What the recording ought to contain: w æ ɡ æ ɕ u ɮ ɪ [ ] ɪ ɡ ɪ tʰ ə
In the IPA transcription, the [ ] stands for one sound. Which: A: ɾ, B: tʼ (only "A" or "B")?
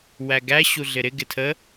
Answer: A